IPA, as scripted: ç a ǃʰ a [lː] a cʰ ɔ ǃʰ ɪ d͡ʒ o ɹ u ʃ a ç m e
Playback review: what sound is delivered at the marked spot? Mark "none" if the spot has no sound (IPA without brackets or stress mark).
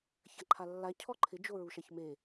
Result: lː